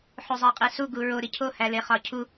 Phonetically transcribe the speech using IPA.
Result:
ħ o zˤ æ qʼ i s u ɡ u ɹ o ɾ i cʰ o h æ l e χ ɒ cʰ u

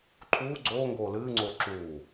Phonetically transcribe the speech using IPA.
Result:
ǃʰ uː ɡ͡ǀ oː ŋ ɡ oː l ɨː ŋ͡ǀ oː ǁ uː

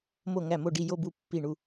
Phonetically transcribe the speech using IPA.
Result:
m o˥˩ ŋ æ˥˩ m o˥˩ ɖ i˥˩ j o˥˧ b u˥˩ pː i˥˩ ɳ u˥˧

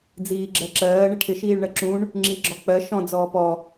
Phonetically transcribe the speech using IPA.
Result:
d͡z iː ɡ͡ǁ ɜ ǁ ɜː ɳ ɪ ʈʰ ɪ ʃ iː ɭ ɳ ɜ ǁ ũ ɳ | ŋ͡ǁ i ɡ͡ǁ ɔ k͡p ɜ ʃ ɔ̃ d͡z ɔː p ɔ

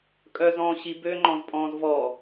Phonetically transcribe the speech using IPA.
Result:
kʼ œ z ɔ̃ː ɕ i b ø ŋ͡ǃ ɔ̃ z pʼ ɔ̃ː z v ɔ

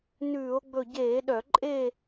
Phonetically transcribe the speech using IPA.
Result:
n ʉː˧˩˧ o̯ ɡ͡b ɵ˥˨ ɟ eː˧˩˧ ɗ œ˧˩˧ ǃʼ e˥˨

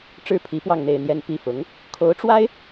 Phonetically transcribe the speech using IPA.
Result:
ʈ͡ʂ ɻ̩˥ pʰ i˧˥ p w ɑ˥˧ ŋ n̪ e˥˧ ɪ̯ n̪ j ɛ˥˧ n p i˥˩ f ʊ˧˥ ŋ | kʰ o˧˥ ʊ̯ ʈ͡ʂ w a˥ ɪ̯

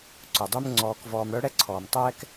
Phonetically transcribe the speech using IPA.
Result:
ǀ ʊ˩ dˤ y˥ m ŋ͡ǀ ɔː˨ k v ɔː˨ m ɽ œ˥ ɽ ɛ˥ ǀʰ ɔː˩ m tˤ ɛː˥ k

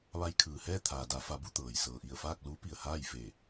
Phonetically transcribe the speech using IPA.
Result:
ʋ a˧ j kʰ ɯː˩ h ɛː˥˨ t̪ʰ aː˩ d a˩˧ f a˩˧ b u˧ t̪ ɤː˩ j s ɤː˩ ʔ i˧˩ ə̯ f aː˥˨ k̚ l uː˧˥ p i˩ ə̯ h aː˥˨ j f e˧˩

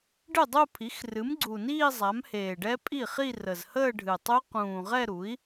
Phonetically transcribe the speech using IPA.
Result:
ɖ ɨ˥˩ dˤ u˥˧ pʰ i˩˥ x r ɨ˩˥ m ɡ͡ǀ u˨˩ n iː˥˧ zˤ a˩˥ m h eː˨˩ ɖ ɛ˦˥ pʼ i˥˩ χ i˥˧ r ə˨˩ z h əː˥˧ ɖʱ ɨ˨˩ tˤ u˦˥ q ũː˨˩ ʁ ɛ˥˧ ɾ u˩˥ i̯

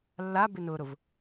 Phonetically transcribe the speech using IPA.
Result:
lː a b ɪ n ʊː ɾ ʊ v

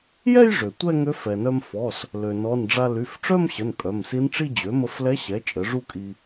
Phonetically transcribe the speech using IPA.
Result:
j ɛ˥˧ j ʐ ø˩ tʷ ɛ˥˧ ŋ ø˧˥ f ɛ˩ n œ˧ m f ɔ˩˧˩ s | l ø˩ n ɔ˩˧˩ n ɖ͡ʐ a˧ l y˩˧˩ f ʈ͡ʂ œ˥˧ m ɕ ə˩˧˩ n kʼ œ˩˧˩ m s i˧˥ n ʈ͡ʂ i˥˧ d͡ʑ ø˩˥ m ə˧ f l ɛ˧˥ ɕ ɛ˩˥ t͡ʃʼ ə˩˥ ʐ u˥˧ kʼ i˧

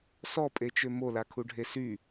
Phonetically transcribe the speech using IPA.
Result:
s ɔ pʼ e t͡ʃ ø m o l a kʰ u ɖʱ e s y

